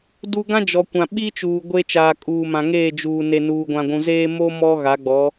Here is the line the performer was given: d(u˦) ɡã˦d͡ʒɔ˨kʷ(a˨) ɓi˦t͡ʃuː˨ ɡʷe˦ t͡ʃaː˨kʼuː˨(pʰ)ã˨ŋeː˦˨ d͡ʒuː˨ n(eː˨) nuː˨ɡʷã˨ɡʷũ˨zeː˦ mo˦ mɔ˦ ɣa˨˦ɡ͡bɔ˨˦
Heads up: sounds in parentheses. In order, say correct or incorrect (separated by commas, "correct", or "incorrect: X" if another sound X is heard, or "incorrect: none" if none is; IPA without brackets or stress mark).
correct, incorrect: ã˨, incorrect: m, incorrect: e˨